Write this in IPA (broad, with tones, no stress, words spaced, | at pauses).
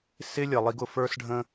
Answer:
sɪ˦lʲʌ˨lˠi˧ɡ ʊ˨fə˞˦sɖʱə̃˦